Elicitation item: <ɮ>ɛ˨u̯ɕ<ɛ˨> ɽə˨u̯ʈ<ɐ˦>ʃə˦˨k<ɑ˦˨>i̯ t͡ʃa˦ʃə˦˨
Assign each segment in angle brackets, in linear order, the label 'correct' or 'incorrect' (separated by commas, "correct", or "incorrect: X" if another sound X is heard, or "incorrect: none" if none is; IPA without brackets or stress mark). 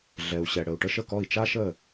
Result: correct, correct, incorrect: ə˦, incorrect: ɔ˦˨